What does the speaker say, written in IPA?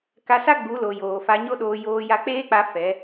k a˧ s a˦ ɡ͡b u˨˦ l o˨ j oː˨ f a˧ ɲ o˦ ɗ oː˧ j oː˧ j a˧ k͡p eː˦ k͡p a˦ f ɛ˨˦

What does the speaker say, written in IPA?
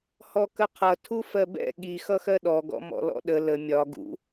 h ɔ k ə qʰ ʌ tʰ u f ɜ b ɛ̰ ɠ i x ʌ x ɜ ɗ ɔ ɡ ɔ̰ m ɔ̰ l ɔ̰ ɗ ə l ə mʲ ɒ ɡ ṵ

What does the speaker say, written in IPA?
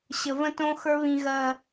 ɕ ə˨ v ə̃˦ t õ˦ x ə˞˧ β ĩ˨ ɣ ɜ˨

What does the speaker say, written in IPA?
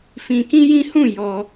f ĩ˧ k ĩ˦ j ĩ˦ h ũ˦˨ j ɔ˧

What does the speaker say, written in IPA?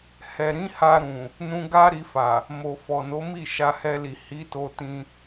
h ɛ˨ ɾ ĩ˨˦ h a˧ ɾ ũ˨ | n ũ˧ ɡ a˦ ɾ i˧ f a˨ | m o˨ f ɔ˨ n o˨˦ m i˦˨ ʃ a˧ h ɛ˧ l i˨ h i˨˦ t o˧ t ĩ˧

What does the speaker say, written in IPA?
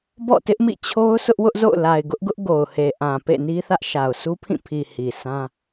b ɔ̰˦˨ t ɪ˦ ʔ m ḭ˦˨ t͡ɕʰ o˦ ʊ̯ sʰ ʊ˦ ʔ w ʊ˦ ʔ z o̰˦˨ ʊ̯ l a˨ ɪ̯ ɡ ʊ˦ ʔ ɡ ʊ˦ ʔ ɡ o˨ ʊ̯ h e˨ ʔ ã˨ p ḛ˦˨ n i˦ θ ä˦ ʔ ʃ a˨ ʊ̯ sʰ u˦ pʰ ĩ˦˨ pʰ i˨ h i˨ sʰ ã˦

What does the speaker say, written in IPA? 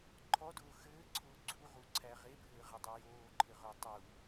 ǃʰ ɔ d ʊː x ɘː ǀʰ ʊː ɡ͡ǀ u ʁ u ǀʰ æ ʁ e bʱ ɘː ʁ ɘ dˤ ɘ j oː ǃʰ ɘ ʁ ʊː tˤ u

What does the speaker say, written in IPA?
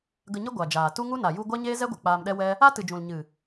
ɡ ə˧ ɲ ə˦ ɡʷ a˨ d͡ʒ aː˨ t u˦ ŋ u˦ n a˨ j u˧ ɡʷ a˦ ɲ eː˦ z ɛ˦ ɡʷ ɨ˨ k͡p aː˧ m ɗ ɛ˦ w ɛ˦ | a˦ t ɨ˨ d͡ʒ ũ˨ l ɲ ɨ˨

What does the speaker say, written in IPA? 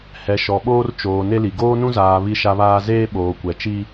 h ɛ˨ ʃ ɔ˨ ɓ oː˦ r t͡ʃ oː˨ n e˦ l i˨ ɡ oː˦ n ũ˦ z aː˨ β i˦ ʃ a˦ β aː˦ z eː˦ ɓ oː˨ kʷ ɛ˨ t͡ʃ i˦

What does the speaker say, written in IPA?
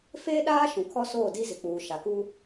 f eː˦ ɗ aː˦ ʃ ũ˨ kʰ ɔ˦ s oː˦˨ d i˦ z ɪ˨ k͡p uː˨ ʃ a˨ k uː˦

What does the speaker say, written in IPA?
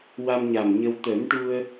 w a˧ m ɲ a˨˩ m ɲ ə˧ w t̪ ə˨˩˦ m ʈ u˧ ə̯

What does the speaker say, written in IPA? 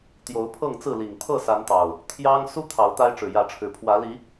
t̪ j o˨˦ ʊ̯ pʰ ɤ˥˨ ŋ t͡s ɹ̩˥˨ l i˨˩ ŋ t̪ʰ ɤ˥˨ s a˨˦ n t̪ ɑ˨˩ ʊ̯ | t̪ʰ j ɑ˦ ŋ s u˦ t̪ʰ ɑ˨˦ ʊ̯ t̪ a˦ ɪ̯ ʈ͡ʂ ɻ̩˨˩ j ä˨˦ ʈ͡ʂʰ ɻ̩˨˩ pʰ w ä˨˦ l i˨˦

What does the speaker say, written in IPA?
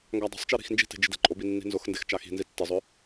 ŋ ɡ a dˤ e̤ sˤ t͡ʃ e ɾ i̤ x n d͡ʒ i̤ t e̤ d͡ʒ ɪ d ɛ̤ ǃʼ o b i nː i̤ n z ʊ x n d e x t͡ʃ a x i̤ n z i tː ɪ zˤ ʊ

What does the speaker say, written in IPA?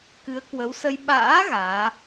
k ɨ˨˦ ə̯ k w ə˨˦ w s ə˧ j ɓ a̰ː˧˥ ɣ aː˨˦

